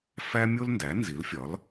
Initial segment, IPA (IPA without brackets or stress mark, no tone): f